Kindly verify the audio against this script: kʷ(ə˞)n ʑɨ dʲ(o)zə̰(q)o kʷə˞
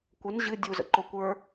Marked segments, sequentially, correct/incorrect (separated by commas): incorrect, incorrect, incorrect